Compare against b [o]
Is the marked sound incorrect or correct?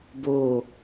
correct